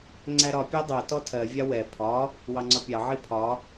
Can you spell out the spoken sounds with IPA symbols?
ŋ͡ǀ æ ɾ ɒ pʲ æ dˤ ɜ t ɔ tʰ ɜ vʲ ɑ w ɛ pʰ ɒ | w ɑ ŋ͡ǀ ɒ pʲ ɑ ʕ i pʰ ɒ

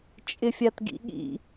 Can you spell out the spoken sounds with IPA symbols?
t͡ʃʼ ɪ fʲ a t ɡ ḭ ɠ ḭ

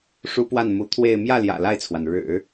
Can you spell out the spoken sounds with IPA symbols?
ʂ u˥ p w a˥˩ n m u˧˥ t̪ʰ w e˥˧ ɪ̯ m j ä˥˩ l j ä̰˨˩ l a˥˩ ɪ̯ t͡sʰ w a˩ n ɻ ɻ̩˨˩˦

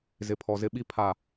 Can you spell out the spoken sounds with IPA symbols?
z ɪ˨ pʰ ɔ˨ z ɪ˦ ɓ i˦ pʰ a˦˨

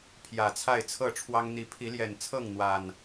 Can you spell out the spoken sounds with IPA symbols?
pʰ j ä˨˩ t͡sʰ a˥˨ ɪ̯ t͡sʰ ɤ˥˨ ʈ͡ʂʰ w ɑ˦ ŋ n̪ i˨˦ pʰ i˨˦ l j ɛ˨˩ n t͡sʰ ɤ˥˨ ŋ n̪ w a˨˩ n

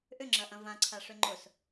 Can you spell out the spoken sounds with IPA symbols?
ʔ ʏ ŋ͡ǁ ɐ ʔ ɐ̃ v ã ǀʰ a ʂ ø ŋ͡ǃ ʊ s

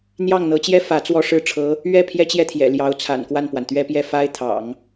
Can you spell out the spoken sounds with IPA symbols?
n̪ j ɑ˥˩ ŋ n̪ ɤ˧˥ t͡ɕ j ɛ˥ f ä˧˥ t͡s w ɔ˥˧ ʂ ɻ̩˥˩ ʈ͡ʂʰ ɤ˧˥ | ɥ ɛ˥˩ pʰ j ɛ˥ t͡ɕ j ɛ˥˩ t̪ʰ j ɛ̰˨˩ l j ɑ˧˥ ʊ̯ t͡sʰ a̰˨˩ n k w a˥˩ n p w a˩ n t̪ ɥ ɛ˥ p j ɛ˥˩ f a˥ ɪ̯ t̪ʰ ɑ̰˨˩˦ ŋ

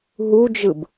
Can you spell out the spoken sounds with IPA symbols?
ɦ u d͡ʒ ɯ b

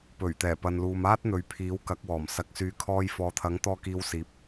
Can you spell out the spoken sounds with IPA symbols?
p ɵ˨˩ ɥ t̪ ɛː˨˩ p ɐ˨ n l uː˨ m aː˥ t̚ n̪ ɵ˨˧ ɥ pʰ iː˨˥ w k ɐ˨˥ k̚ w ɔː˨˩ m s ɐ˨ k̚ s yː˨˧ kʰ ɔː˧ j f ɔː˨ t̪ʰ ɐ˨˥ ŋ t̪ ɔː˧ k iː˨˧ w s iː˨˥ p̚

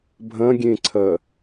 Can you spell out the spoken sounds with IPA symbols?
bʱ ɐ̃ ɡʲ ẽ ǀʰ ɐ

